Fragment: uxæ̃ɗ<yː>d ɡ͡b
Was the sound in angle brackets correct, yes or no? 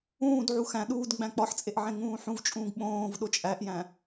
no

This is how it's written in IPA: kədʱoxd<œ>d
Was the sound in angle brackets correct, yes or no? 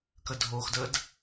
no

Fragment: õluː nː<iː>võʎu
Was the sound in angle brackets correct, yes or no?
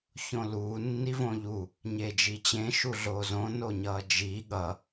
no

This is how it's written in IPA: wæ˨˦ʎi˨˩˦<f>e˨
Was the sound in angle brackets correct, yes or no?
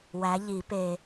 no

